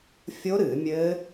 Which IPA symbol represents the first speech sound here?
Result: fʲ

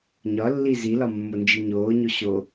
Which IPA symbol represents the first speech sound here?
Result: ɲ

